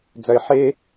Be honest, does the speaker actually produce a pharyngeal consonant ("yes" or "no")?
yes